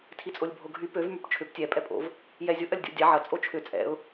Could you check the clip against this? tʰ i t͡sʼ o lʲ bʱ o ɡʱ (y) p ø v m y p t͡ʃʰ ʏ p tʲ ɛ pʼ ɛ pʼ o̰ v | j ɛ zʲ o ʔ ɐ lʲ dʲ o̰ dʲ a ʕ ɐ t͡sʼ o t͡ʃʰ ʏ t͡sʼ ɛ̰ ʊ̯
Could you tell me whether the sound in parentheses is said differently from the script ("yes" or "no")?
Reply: no